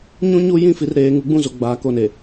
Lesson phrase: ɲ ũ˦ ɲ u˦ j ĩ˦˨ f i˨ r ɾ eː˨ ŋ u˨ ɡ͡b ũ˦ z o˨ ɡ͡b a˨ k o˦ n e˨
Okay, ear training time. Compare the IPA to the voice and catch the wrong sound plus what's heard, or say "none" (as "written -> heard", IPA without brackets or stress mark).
none